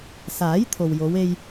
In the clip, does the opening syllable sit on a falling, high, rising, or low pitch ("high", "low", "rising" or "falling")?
rising